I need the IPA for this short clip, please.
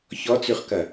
ç ɔ t͡s ʉ χ k ɐ

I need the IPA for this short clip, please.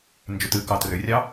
n d͡ʒ ʏ t ɨ k ɑ t r ʏ rʲ ɑ

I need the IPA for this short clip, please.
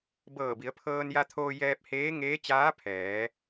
b ɤː˧˩ b i˩˧ ə̯ pʰ ɤː˧ n j a˧ t̪ʰ oː˧ j ɛː˧ p̚ h eː˧˥ ŋ eː˧˥ t͡ɕ aː˧˥ pʰ ɛː˩˧

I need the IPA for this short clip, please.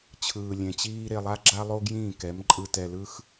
t͡ɕʰ ɯː˨ lʲ ẽ˨ t͡ɕ iː˧ ɾ e˧ lˠ a˦ ɡ͡ǁ a˦ lˠ o˦ ɡ j ĩː˦˨ k ɛ˨˦ m ǃʼ ɯ˧ t ɛ˧ l ɯ˦ x

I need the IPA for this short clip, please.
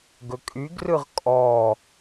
ɡ ɵ kʼ y ɡ r ɯ ʁ kʼ ɔ

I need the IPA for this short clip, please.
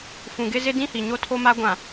f ũ˨ ɡ ɪ˦ z ɪ˦ d ĩ˦ h i˨ ɲ o˦ tʰ o˦ m a˦ ɡʷ ã˨

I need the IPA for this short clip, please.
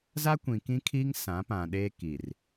z a˦ kʷ ĩ˨ k ĩ˦ kʰ iː˦ ŋ s ã˨˦ p ã˨ ɗ eː˦ k i˨ r

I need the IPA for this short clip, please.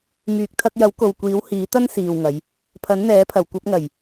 m yː˨ k̚ t̪ʰ ɐ˧ k̚ j ɐ˨˥ w k o˨ w kʷ iː˨˥ w h iː˨˥ t̪ ɐ˥ n s iː˨ w ŋ ɐ˨˧ j | pʰ ɐ˨˥ n n̪ ɛː˨˥ pʰ ɐ˨˩ w kʷ ɐ˧ p̚ ŋ ɐ˨˩ j

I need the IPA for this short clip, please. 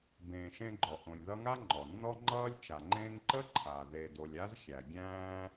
b ẽː˨ ʃ ẽ˦ ɡ͡ǃ ɔ˩ ʔ õ˨ lʲ ð ʌ˦ ŋ a˥ ŋ͡ǃ ɔ˩ nː ɔ˦ ŋ͡ǃ ʌː˦ lʲ t͡ʃ a˩ ŋ͡ǃ ẽː˦ ŋ ǃ ə˥ ǃʰ a˩ ð e˨ d o˨ lʲ a˥ z xʲ æ˩ ɡʲ æ̃ː˦

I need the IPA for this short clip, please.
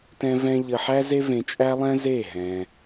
t ɛ̃˦ v ɛ̃˦ ʎ ə˧ ħ æ˦ z e˦ v ẽ˧ t͡ʃʼ æ˦ lˠ ɛ̃˦ z e˦˨ ɦ ɛ̃˧

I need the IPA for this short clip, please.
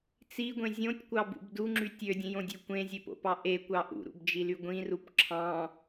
t͡s i ɡʷ ẽ zʲ õ tʲ kʷ ɑ b ṵ b d u ŋ͡ǁ y tʲ ø dʲ ẽ j õ dʲ ø kʷ ẽ zʲ e p o̰ p ɑ ʔ e kʷ ɑ ʔ ṵ ɾ ṵ b d͡ʒ i l y ɡʷ ĩ r u p ǁʰ ɑ̃

